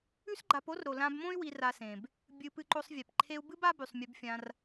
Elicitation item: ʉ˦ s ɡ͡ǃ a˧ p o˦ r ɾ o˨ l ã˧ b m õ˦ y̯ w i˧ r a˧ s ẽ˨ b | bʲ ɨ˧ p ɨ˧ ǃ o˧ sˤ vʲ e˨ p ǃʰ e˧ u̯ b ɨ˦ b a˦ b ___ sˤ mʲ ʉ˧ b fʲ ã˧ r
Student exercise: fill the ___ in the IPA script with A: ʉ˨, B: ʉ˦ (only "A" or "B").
A